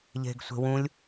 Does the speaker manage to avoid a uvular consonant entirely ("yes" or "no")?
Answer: yes